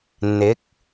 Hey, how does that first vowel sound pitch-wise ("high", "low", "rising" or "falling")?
rising